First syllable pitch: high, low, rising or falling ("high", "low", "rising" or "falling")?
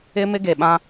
high